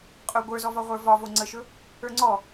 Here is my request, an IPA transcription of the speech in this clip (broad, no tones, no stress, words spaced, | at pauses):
qʼɵ ɡʷə˞zɔvɒ ʁʷə˞vɒvo ŋ͡ǀəʃɵ | ə˞ŋ͡ǀɔ